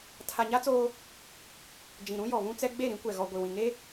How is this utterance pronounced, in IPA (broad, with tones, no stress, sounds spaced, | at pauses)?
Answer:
tʰ a˨ ɲ a˦ t͡s oː˦ | d͡ʒ ĩ˨ ɾ ũ˦ j ɔ˨ β ũ˦ t͡s ɛ˦ ɡ͡b e˦˨ ɾ ĩ˦ kʷ ɛ˨ ɣ ɔ˨ ɡʷ i˨ w ĩ˨ ŋ e˦